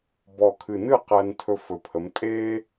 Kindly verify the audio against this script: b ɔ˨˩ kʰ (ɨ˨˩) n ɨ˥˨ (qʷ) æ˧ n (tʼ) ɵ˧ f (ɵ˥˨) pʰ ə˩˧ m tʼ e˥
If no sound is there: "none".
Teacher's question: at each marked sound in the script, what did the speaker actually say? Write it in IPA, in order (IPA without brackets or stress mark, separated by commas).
ɨ˨˩, q, tʰ, ɵ˨˩